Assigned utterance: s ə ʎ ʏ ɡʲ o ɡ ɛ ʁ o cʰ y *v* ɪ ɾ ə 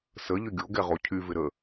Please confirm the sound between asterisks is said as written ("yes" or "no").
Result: yes